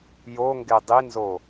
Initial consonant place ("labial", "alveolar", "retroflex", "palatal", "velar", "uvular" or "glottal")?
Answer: palatal